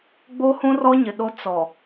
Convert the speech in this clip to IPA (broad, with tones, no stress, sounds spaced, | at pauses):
ɡ͡b o˦ h ũ˦ r ɔ˦ ɲ ɪ˨ ɗ o˦ t͡s ɔ˨